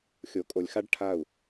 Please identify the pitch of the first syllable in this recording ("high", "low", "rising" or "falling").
low